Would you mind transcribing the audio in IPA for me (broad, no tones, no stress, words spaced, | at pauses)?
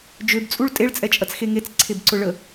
d͡ʒøbt͡sʼuɭ tʼeɭt͡sʼɛt͡ʃʼɐt͡sxe ŋet͡sǀʰebǀʊ ɭə